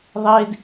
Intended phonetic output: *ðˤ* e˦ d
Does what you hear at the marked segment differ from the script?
no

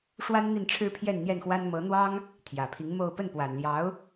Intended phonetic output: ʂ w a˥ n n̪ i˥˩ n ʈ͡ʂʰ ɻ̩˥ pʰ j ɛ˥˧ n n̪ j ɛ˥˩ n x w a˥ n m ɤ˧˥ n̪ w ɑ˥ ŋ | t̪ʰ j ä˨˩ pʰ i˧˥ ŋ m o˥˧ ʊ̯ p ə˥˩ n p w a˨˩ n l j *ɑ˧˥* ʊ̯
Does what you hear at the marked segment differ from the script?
no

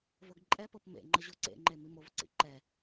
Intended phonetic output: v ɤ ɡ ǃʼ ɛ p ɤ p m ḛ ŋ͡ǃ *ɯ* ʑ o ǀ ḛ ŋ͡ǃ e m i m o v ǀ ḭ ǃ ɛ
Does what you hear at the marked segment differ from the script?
yes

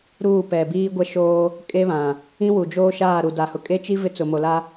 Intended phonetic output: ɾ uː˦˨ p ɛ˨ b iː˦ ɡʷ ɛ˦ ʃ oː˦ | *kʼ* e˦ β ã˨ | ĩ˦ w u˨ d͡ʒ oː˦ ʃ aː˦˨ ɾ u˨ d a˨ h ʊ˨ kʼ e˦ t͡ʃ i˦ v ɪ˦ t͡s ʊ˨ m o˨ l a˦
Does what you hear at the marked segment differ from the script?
no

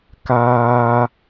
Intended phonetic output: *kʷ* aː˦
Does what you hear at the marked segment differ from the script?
yes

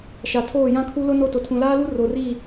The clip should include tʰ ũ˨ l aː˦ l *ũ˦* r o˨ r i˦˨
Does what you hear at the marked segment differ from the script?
yes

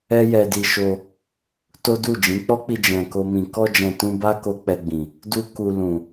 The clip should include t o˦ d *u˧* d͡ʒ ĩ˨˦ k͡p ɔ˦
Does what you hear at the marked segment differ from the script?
yes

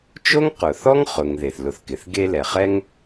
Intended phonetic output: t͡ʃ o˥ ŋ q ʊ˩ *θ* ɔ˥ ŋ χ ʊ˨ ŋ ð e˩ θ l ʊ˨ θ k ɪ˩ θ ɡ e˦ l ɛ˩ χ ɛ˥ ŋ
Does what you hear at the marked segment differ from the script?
no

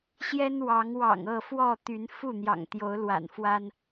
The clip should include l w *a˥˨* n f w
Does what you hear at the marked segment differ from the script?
yes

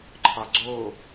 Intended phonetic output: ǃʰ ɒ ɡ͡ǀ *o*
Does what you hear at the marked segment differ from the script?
no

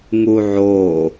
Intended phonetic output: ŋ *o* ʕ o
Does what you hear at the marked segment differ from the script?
yes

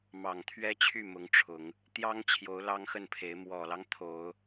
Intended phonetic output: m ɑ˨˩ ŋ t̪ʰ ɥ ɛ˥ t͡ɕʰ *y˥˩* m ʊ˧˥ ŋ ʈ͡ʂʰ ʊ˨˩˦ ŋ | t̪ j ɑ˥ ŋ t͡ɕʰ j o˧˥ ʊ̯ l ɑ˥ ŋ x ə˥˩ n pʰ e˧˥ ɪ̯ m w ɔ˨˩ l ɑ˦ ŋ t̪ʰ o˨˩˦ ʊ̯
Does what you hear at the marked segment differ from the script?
no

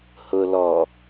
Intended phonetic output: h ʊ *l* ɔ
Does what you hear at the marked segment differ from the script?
no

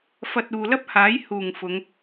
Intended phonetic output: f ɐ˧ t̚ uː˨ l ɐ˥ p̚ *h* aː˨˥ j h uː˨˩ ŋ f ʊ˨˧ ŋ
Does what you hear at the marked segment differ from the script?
no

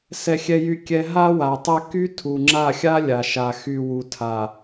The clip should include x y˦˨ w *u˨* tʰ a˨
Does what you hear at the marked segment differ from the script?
no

